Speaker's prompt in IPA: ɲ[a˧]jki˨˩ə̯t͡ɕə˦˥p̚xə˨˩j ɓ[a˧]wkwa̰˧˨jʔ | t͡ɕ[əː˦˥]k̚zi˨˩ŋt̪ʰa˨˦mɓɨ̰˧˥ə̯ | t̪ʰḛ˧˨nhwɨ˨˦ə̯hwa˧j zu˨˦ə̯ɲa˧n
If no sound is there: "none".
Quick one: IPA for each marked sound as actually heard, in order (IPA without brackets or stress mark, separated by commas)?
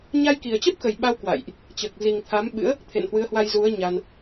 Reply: a˧, a˧, əː˨˩